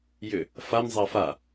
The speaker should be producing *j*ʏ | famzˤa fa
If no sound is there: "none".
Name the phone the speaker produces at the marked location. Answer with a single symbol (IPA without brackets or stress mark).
j